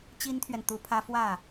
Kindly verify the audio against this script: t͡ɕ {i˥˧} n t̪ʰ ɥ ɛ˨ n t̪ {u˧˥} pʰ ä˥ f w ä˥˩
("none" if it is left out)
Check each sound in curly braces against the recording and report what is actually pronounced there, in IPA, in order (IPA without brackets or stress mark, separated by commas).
i˥, u˧˥